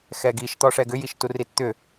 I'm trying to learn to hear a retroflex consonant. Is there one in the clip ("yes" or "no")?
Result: yes